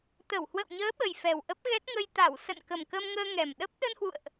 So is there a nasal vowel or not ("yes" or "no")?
no